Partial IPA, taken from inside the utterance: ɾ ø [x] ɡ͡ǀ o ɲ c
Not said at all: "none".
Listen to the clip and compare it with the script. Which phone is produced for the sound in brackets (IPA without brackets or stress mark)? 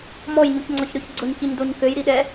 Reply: ç